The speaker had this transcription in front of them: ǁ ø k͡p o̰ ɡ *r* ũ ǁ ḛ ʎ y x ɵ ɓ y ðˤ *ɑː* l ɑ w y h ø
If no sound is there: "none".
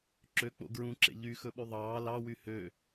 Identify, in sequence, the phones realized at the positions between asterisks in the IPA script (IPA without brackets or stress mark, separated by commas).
ɹ, ɑː